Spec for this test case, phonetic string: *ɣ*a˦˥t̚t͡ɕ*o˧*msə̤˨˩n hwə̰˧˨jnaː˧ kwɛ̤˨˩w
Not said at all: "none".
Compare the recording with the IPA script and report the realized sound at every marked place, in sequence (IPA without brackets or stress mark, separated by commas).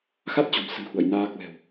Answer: x, o̤˨˩